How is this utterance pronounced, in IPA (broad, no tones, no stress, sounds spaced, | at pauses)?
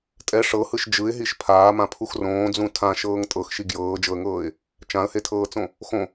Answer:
tʼ ɛ ʂ ɤ h ɯ ʃ d͡ʒ ɯ ɪ̯ ɦ i ʃ pʰ aː m ã pʰ u x r õː d͡z ũ tʰ ã ʃ ɤː ŋ tʼ ɤ x ʃ i ɡ j ɤː d͡ʒ ɤ ə̯ ŋ ɤː ɪ̯ | t͡ʃ ã ə̯ h e tʰ ɤː t͡s õ | x õ